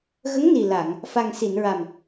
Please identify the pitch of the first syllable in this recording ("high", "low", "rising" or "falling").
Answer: rising